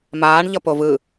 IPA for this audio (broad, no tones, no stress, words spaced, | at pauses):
maːɳʎʌ povɯ